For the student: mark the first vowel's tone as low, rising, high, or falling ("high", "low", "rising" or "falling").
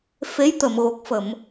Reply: rising